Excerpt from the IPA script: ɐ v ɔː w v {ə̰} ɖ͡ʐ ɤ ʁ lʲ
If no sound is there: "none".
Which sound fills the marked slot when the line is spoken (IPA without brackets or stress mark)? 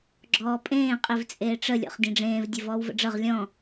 ə̰